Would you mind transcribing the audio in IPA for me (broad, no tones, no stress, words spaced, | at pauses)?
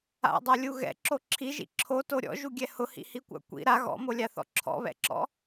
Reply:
a̰dˤalʲu ɣɛ̰ǁo ǁʰiʒḭ ǁʰoto ɾʲɔ̰ʒuɡʲɛ hʊhḭhikʷa̰ kʷḭ ɾa ɣɔ̰molʲaθɔ̰ ǁʰɔ̰βɛ̰ǁɔ̰